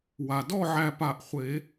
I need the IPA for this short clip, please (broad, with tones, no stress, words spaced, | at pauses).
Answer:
wa˩dɔ˥˨ʕæ˧˩ pa˧˩ʔχʷe˨˩˦